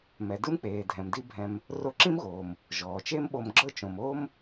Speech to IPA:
m ɛ˩ d ɯ˥ m k͡p eː˩ dʱ ɛ̃˩ m d i˥ bʱ ɛ̃˧ m | r o˧ ǁ ĩ˥ m ɣ oː˩ m | ʒ ɔː˩ t͡ʃ e˥ m ɓ o˧ m ɡ͡ǁ ɤ˥ t͡ʃ õ˩ m oː˥ m

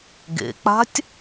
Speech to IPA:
ɡ ḛ k͡p a̤ tʲ

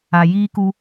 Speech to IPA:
a˨ j iː˦ k u˦

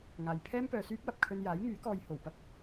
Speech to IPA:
ŋ aː˧ j pʰ ɛː˥ m p œː˨ s yː˥ p̚ w ɐ˨ p̚ kʰ ɵ˧ n j aː˨˥ j ŋ yː˨˥ k ɔː˧ j h o˨˩ w p ɐ˥ k̚

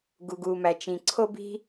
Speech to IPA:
ɡ u˩ ɡ uː˩ m æ˩ t͡ʃ ĩ˩ ǀʰ o˥ b i̤˥

